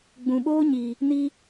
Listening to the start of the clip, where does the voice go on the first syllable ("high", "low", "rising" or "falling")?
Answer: low